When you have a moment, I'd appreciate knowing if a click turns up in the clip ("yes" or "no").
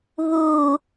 no